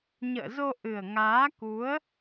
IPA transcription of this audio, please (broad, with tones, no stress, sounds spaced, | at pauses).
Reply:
ɲ ə̰ː˧˨ z o˧ ʔ ɨ˨˩ ə̯ ŋ aː˨˦ k u˨˦ ə̯